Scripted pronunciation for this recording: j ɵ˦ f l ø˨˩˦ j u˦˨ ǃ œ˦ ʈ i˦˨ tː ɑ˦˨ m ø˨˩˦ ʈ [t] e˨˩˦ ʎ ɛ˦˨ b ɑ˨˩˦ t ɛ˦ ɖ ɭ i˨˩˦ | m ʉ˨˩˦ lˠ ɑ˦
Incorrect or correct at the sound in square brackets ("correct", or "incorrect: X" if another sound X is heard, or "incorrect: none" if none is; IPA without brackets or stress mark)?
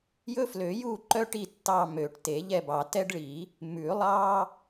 correct